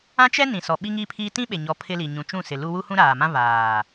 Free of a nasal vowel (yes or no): no